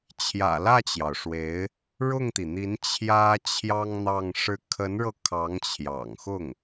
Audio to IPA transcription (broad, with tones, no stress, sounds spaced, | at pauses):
t͡ɕʰ j ä̰˨˩ l ä˥˩ t͡ɕ j ɑ˩ ʊ̯ ʂ w e˧˥ ɪ̯ | ɻ ʊ˥˩ ŋ t̪ i˩ n̪ i˧˥ n t͡ɕʰ j ä˥ t͡ɕʰ j ɑ˥ ŋ n̪ ɑ˥˧ ŋ ʂ ɻ̩˥˩ kʰ ə˧˥ n ɻ ɤ˧ kʰ ɑ˧˥ ŋ t͡ɕʰ j ɑ̰˨˩ ŋ x ʊ˥˩ ŋ